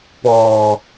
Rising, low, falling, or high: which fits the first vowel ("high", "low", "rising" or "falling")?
low